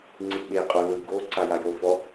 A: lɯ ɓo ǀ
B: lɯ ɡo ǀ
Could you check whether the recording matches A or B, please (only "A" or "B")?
B